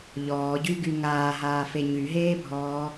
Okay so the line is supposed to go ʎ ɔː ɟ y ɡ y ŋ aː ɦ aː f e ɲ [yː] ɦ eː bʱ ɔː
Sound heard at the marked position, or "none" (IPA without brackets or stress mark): y